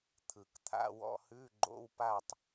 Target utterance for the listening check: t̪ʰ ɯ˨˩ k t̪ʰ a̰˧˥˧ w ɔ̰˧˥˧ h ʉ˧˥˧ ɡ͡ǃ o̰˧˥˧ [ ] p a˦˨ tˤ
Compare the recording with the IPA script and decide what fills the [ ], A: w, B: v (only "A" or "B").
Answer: A